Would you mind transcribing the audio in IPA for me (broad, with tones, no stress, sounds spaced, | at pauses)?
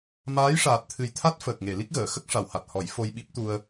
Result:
m aː˧˥ j ʂ aː˨˩ t̚ t̪ʰ ɨ˨˩ j t̪ʰ a˦˥ t̚ f əː˨˩ k̚ ŋ e˨˩˨ l i˦˥ k̚ ɣ əː˨˩˨ x ə˦˥ k̚ ʂ a˨˩˨ w h a˨˩ t̚ h ɔ˨˩˦ j f o˧ j ɓ i˦˥ p̚ t̪ u˧ ə̯